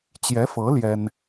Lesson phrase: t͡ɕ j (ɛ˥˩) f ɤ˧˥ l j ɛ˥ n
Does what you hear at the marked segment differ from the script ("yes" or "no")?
yes